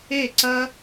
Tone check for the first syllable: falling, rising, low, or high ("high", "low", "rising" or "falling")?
falling